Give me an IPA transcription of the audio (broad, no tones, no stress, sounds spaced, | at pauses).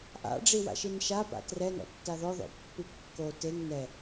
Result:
ʔ a̰ ɖ͡ʐ i w a̰ ʃ i n ʃ a p a̰ t r ɛ n ɔ̰ tː a ð ɔ ð ɔ̰ pː i kː o t e ŋ n ɛ